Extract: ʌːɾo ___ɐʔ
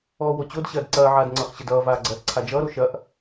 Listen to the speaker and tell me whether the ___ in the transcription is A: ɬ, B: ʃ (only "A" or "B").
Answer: B